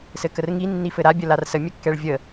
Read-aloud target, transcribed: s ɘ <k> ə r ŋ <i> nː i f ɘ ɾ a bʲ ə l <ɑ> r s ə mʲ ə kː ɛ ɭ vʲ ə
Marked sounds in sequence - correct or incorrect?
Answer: correct, correct, incorrect: a

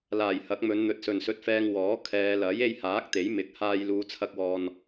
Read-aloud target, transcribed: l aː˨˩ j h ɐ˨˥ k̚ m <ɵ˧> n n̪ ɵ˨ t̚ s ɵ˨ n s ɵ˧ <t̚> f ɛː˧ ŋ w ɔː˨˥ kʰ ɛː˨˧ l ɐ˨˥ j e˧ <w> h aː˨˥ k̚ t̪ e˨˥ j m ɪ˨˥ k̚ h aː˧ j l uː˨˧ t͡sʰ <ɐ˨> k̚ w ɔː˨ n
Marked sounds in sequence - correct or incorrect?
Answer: incorrect: ɵ˨˧, correct, incorrect: j, incorrect: ɐ˧

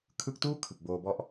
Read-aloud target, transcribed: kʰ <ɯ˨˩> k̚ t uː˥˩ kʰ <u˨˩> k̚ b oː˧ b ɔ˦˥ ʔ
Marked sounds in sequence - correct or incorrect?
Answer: incorrect: ɯ˦˥, incorrect: ɯ˨˩

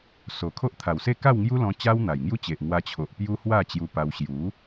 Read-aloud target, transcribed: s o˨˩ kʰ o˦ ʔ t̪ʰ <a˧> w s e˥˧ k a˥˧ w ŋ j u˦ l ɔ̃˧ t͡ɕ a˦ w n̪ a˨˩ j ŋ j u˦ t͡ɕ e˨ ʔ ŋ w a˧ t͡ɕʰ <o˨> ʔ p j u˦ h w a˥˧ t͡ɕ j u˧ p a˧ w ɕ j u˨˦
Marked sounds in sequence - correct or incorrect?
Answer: incorrect: a˨˩, correct

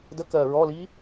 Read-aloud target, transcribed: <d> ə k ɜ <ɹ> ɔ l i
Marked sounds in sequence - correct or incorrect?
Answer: correct, correct

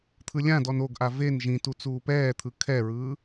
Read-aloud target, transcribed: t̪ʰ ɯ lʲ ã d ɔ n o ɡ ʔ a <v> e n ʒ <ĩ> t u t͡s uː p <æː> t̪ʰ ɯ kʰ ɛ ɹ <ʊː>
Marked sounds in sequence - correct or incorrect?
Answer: correct, correct, incorrect: ɛː, incorrect: ɯː

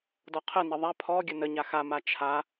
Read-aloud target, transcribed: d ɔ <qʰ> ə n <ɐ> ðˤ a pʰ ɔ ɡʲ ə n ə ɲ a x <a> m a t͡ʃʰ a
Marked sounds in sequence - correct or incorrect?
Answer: correct, incorrect: ə, correct

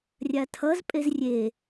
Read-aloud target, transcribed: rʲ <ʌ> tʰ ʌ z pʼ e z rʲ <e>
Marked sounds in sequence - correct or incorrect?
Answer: incorrect: a, correct

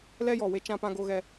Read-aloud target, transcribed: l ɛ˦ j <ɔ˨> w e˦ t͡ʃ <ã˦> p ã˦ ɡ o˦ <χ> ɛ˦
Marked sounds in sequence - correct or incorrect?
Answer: correct, correct, incorrect: ɣ

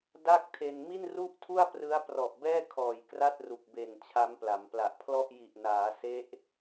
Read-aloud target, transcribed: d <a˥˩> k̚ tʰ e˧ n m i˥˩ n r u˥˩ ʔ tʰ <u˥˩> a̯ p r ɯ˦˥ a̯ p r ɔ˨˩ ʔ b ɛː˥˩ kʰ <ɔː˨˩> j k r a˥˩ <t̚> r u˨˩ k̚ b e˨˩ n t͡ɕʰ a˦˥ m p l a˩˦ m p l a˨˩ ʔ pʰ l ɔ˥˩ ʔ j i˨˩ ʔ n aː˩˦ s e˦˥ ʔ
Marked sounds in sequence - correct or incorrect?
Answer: correct, correct, correct, correct

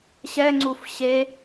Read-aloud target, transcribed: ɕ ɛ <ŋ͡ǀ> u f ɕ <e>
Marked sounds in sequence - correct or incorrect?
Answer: correct, correct

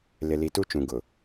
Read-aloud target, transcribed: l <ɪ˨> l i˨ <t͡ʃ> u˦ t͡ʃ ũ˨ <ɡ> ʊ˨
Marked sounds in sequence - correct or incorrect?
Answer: correct, incorrect: t, correct

